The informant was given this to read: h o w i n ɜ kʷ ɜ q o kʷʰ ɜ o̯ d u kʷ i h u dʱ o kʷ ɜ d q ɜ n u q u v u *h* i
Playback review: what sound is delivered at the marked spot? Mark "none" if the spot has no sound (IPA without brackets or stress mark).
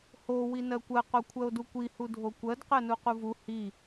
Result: h